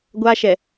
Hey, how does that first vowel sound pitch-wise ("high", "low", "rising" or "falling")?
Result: high